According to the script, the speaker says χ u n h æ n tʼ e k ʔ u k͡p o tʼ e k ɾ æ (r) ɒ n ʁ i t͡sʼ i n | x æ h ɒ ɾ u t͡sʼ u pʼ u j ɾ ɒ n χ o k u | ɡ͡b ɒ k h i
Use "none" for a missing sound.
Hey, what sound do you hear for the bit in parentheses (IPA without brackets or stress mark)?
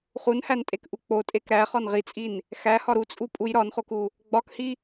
χ